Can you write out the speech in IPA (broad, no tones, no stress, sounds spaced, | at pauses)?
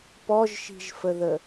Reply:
p ɔ ʒ ʃ i̤ ʒ f ə ð ə